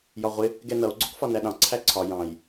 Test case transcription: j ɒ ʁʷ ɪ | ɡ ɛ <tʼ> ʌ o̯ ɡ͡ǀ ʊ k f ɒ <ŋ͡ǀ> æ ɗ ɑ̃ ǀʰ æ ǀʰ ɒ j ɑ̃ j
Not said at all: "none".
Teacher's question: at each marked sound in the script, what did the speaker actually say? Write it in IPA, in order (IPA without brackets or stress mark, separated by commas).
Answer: n, n